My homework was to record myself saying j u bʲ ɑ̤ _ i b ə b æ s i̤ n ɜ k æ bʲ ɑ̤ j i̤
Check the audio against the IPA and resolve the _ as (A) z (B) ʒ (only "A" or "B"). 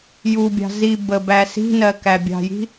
A